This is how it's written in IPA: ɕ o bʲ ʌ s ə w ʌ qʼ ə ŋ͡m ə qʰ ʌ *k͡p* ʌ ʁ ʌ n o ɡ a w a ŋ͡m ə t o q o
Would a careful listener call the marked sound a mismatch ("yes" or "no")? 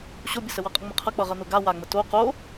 no